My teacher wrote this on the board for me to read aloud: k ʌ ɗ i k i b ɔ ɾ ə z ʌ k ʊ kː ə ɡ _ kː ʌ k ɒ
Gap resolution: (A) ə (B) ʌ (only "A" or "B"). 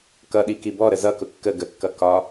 A